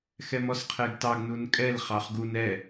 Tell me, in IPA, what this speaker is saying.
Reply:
xɛmɔsqʰɛɡtɑɡ nunkʼɛl χɑχɡun ɛ

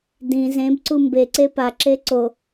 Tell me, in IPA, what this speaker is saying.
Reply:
dĩ zẽbǀu mbeǀe paǁe ǀo

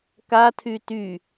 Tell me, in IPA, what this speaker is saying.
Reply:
ka tʰyty

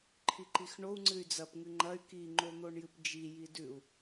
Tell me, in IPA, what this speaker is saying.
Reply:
ǃʰiǃixɳou̯ ŋ͡ǀɨy̯d͡zɐp ŋɨŋ͡ǃɐy̯ ki ŋ͡ǃon̪oɳjɨpd͡ʒi jidʉu̯

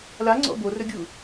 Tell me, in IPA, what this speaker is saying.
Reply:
laŋ͡ǀɔ̰ borɵɡʲu

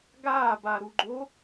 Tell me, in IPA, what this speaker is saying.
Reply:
ɡaːba ɾuɡ͡ǃo

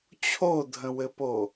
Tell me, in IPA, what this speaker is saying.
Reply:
t͡ɕʰodʱə̃wɘpo

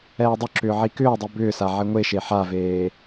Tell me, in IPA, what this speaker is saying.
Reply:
ɛːdˤʏǁʏː ʕikʏːdˤi bʏːsa ʕeŋʷeʃe ħaveː

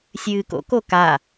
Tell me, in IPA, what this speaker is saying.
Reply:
sʲɨːko̰ koka

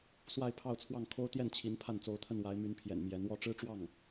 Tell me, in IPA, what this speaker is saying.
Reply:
swa˥˧ɪ̯pʰɑ˥˧ʊ̯t͡sʰwɑ˥˩ŋ kʰo˥ʊ̯t̪jɛ˥˩nt͡ɕʰi˧˥n pʰa˥˩nt͡so˧˥ʊ̯t̪ʰə˥˩n wa˧˥ɪ̯my˧˥npʰjɛ̰˨˩n mjɛ˧˥nwɔ˥ ʈ͡ʂɻ̩˥ʈ͡ʂwɑ˥˩ŋ

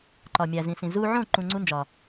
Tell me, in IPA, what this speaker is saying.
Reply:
ǃɒ˨mʲæ˨ zĩ˨sĩ˨ zu˧ʕõ˦˨ ǃũ˧ŋ͡ǀu˦nd͡ʒɒ˨

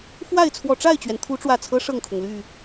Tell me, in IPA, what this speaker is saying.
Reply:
fwa˥˨ɪ̯ t͡sʰwɔ˨˩ʈ͡ʂa˥˨ɪ̯t͡ɕɥɛ˩n t̪ʰu˨˦ʈ͡ʂwä˨˩t͡sʰɤ˦ ʂɤ˥˨ŋkʰʊ˩ŋly˥˨

